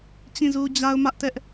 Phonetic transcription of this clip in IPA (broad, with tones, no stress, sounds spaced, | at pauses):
t͡ɕ ĩ˦˨ z u˦ d͡ʑ a˦ ʊ̯ m ä˦ ʔ t ɛ˦ ʔ